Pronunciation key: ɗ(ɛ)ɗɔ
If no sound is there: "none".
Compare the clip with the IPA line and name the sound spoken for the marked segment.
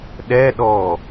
ɛ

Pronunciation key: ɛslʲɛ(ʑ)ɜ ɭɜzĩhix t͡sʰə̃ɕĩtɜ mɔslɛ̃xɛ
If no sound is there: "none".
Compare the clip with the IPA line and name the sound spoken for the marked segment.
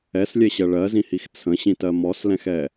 ɕ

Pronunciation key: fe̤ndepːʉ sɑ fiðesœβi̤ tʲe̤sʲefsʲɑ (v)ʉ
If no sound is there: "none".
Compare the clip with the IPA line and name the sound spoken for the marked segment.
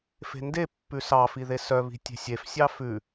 f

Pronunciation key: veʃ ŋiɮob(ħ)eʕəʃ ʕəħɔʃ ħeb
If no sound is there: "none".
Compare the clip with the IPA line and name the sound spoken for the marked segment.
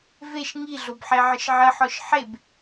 ħ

